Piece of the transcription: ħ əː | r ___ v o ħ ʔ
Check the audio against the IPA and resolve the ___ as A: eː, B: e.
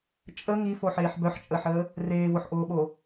A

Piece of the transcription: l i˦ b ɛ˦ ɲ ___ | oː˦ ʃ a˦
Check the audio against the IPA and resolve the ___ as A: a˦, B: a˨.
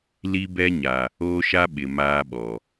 B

